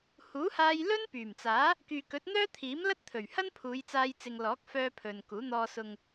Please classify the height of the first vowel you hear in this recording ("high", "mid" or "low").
high